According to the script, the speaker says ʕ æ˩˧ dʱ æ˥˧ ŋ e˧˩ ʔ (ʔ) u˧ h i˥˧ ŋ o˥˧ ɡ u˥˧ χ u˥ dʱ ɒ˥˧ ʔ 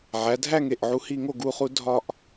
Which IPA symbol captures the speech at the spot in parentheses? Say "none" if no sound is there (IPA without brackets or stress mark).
ʕ